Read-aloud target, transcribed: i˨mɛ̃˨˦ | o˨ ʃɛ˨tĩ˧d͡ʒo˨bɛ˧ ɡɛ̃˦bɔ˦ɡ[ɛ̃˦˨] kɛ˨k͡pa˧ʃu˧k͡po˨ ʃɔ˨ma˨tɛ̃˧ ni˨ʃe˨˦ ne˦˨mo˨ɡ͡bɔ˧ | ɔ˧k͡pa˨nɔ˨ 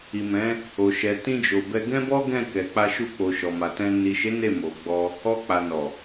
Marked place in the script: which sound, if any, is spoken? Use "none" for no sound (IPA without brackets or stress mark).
ɛ̃˦˨